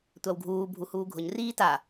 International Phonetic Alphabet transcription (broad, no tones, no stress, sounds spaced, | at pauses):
tʷ a w ɡʱ uː bʱ u h uː ɡʱ ʊ ɲ r iː t a